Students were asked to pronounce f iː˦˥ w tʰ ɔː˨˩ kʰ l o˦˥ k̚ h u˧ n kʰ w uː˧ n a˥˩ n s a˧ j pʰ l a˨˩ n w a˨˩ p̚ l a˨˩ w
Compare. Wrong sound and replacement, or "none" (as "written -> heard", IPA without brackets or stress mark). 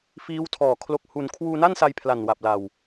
none